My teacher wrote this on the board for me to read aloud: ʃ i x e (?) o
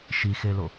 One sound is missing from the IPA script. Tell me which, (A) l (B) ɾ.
A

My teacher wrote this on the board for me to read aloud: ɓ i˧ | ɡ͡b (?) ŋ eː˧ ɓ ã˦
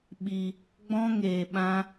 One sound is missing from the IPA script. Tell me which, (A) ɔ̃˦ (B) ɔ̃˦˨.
A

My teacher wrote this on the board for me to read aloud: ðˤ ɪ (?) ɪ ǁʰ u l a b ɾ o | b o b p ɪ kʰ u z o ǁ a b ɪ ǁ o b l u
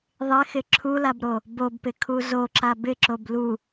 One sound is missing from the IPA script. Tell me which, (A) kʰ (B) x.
B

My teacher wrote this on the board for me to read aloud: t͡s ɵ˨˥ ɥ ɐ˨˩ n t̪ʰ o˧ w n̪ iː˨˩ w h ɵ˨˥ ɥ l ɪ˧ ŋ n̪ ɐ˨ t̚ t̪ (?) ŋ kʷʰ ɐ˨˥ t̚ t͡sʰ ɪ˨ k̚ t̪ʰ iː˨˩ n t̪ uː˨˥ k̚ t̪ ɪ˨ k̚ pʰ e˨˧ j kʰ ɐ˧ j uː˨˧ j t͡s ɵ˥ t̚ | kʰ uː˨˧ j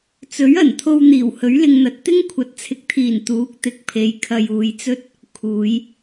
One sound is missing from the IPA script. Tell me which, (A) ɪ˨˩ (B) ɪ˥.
B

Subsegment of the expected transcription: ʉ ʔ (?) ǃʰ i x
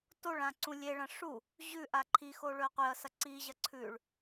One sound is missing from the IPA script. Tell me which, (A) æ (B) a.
B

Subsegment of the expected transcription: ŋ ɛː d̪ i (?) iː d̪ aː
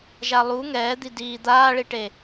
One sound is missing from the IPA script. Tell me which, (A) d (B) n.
A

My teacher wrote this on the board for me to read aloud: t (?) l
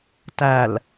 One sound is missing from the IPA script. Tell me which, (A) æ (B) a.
A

